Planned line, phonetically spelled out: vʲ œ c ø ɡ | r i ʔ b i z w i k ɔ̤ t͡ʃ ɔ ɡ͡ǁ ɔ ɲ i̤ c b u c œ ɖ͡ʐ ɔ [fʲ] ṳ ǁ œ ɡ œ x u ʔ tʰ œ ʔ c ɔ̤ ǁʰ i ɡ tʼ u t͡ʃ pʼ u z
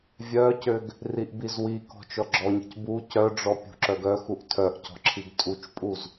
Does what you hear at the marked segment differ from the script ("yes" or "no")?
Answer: yes